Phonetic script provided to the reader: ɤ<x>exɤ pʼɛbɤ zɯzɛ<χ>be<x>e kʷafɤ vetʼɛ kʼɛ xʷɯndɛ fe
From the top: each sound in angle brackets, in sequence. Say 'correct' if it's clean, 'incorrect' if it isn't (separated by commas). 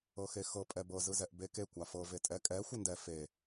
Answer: correct, incorrect, incorrect